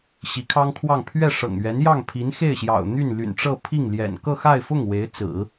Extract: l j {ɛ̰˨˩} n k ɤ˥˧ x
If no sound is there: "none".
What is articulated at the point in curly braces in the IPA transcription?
ɛ̰˨˩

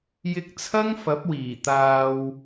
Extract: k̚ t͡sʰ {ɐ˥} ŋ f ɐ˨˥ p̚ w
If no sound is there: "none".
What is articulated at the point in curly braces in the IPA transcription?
ɐ˥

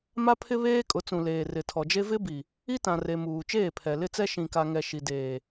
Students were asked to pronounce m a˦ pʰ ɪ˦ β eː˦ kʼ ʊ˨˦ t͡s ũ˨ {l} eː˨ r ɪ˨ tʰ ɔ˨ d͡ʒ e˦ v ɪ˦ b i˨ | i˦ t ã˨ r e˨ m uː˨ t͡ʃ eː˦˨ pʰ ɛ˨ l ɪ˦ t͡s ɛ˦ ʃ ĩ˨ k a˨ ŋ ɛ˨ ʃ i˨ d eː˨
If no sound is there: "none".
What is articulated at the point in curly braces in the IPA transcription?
l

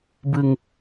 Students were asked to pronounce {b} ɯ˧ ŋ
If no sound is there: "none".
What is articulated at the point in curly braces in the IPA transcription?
b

